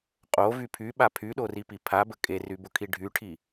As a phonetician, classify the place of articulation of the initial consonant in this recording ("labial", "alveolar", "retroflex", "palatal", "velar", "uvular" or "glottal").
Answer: uvular